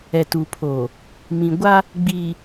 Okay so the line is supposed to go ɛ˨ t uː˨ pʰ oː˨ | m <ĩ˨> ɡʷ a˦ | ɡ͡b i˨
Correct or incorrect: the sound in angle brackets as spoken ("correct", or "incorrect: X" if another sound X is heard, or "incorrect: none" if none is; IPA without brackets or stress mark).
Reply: correct